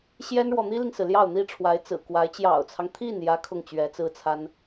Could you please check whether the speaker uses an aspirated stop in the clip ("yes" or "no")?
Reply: yes